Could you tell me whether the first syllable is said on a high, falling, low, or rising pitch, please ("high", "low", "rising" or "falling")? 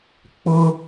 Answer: high